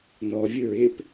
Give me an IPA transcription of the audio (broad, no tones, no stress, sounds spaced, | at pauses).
n ɔ vʲ ʊ ɹ ɪ p